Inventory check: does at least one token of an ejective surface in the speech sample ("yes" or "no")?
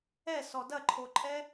yes